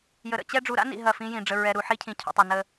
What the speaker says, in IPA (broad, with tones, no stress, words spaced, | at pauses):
jə˨ɾə̰˨t͡ɕɛ˦ ɖ͡ʐu˨ɾa̰˦nḭ˨ ɦɐ˦˨fĩ˦jĩ˨ ɖ͡ʐə˨ɹɛ˨ɾu˨ ħi˦cʰĩ˨cʰṵ˨tˤo˨ nə˦